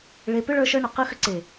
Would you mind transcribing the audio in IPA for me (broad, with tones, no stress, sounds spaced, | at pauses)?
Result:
ɭ e˧ p ʏ˦ ɭ ə˞˧ ʃ ə˞˧ ɳ ʏ˨ q ɯ˧ x ʏ˧ ǀ e˨